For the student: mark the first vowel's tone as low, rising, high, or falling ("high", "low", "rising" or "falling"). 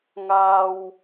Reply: low